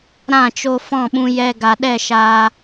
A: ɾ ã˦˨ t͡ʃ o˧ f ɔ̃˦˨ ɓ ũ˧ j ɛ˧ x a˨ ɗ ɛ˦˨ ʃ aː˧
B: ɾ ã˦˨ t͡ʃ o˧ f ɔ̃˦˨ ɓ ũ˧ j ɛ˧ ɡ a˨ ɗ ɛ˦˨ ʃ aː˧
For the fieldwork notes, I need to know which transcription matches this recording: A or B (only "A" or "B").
B